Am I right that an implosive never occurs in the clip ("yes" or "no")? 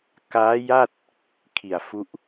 yes